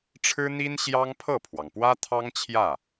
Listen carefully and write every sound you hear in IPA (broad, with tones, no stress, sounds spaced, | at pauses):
ʈ͡ʂʰ ɻ̩˥ n̪ i˥ n ɕ j ɑ˥ ŋ pʰ ɤ˥˩ pʰ w ɑ˩ ŋ p w ä˥ t̪ʰ ɑ˥ ŋ t͡ɕʰ j ä˥˩